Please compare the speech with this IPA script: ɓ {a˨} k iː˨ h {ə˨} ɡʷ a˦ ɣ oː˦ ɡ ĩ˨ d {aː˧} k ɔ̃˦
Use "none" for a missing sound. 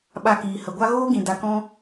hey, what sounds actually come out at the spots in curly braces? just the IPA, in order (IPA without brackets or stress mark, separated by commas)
a˧, ə˨, a˧